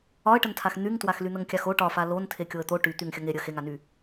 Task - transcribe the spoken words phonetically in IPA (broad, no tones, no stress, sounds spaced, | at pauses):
ɒ ə̯ ʈ ə n tʰ a x n̪ y ŋ t w a x l y n̪ ə ŋ kʲ a x o ʈ ɒ f a l o n tʰ e kʲ o ə̯ t̪ o ʈ y t̪ y ŋ xʲ ə ŋ e ɾʲ ə x e ŋ a n y